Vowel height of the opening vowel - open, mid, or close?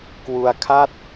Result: close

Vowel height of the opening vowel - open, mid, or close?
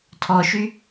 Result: mid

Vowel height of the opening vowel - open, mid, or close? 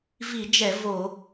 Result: close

